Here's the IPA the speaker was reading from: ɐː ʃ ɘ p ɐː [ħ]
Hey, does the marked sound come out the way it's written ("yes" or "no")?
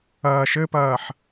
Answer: yes